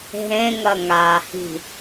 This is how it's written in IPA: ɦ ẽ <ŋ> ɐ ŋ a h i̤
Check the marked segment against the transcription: correct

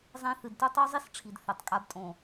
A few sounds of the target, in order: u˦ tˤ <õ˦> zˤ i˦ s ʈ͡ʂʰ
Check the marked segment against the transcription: incorrect: o˦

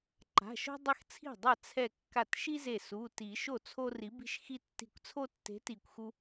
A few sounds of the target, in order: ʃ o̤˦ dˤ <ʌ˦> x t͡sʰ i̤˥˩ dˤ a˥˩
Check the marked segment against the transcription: correct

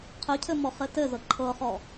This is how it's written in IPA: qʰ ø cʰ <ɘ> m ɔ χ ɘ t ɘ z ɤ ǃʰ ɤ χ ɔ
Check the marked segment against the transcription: correct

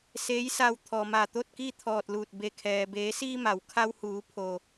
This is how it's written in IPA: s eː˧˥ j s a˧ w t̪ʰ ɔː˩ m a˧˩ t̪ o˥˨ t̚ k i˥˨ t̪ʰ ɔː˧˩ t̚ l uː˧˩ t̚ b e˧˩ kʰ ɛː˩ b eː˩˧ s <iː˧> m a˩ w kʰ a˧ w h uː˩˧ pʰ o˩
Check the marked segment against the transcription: correct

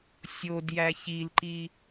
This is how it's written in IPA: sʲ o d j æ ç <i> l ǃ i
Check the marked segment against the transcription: correct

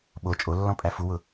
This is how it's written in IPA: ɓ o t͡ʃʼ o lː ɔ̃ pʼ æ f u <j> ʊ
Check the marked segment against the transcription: incorrect: w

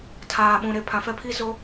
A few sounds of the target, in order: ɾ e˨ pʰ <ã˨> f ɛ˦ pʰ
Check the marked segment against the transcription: correct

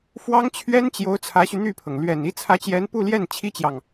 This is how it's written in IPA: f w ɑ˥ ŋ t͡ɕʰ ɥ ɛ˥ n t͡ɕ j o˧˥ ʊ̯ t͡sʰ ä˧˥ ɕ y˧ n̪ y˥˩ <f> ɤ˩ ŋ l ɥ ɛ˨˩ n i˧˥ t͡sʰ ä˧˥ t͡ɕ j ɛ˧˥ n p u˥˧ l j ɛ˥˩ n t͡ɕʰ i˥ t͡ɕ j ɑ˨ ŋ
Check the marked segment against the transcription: incorrect: pʰ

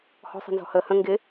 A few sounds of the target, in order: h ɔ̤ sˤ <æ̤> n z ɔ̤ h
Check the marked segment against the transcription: incorrect: ɛ̤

